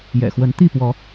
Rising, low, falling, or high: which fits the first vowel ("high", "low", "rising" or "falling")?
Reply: low